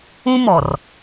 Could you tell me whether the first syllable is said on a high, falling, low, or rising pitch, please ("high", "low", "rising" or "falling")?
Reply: high